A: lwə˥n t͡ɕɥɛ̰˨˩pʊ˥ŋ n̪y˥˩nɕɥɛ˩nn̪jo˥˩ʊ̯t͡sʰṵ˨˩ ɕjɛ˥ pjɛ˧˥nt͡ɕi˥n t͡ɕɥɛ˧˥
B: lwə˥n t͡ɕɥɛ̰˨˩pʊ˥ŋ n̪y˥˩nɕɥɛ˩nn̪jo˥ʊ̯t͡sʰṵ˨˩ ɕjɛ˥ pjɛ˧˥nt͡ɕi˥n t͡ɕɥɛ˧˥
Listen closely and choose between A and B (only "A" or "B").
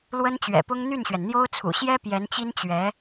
B